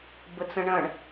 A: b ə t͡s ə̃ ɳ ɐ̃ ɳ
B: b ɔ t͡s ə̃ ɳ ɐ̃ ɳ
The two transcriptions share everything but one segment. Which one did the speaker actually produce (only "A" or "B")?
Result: A